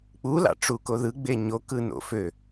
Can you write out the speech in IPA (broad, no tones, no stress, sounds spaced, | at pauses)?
k͡p u l ɑ̰ ʈ͡ʂ u k o ð ɯ ɡ͡b e ɲ o k ɯ n o̰ f ø